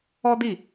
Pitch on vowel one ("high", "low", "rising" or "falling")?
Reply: high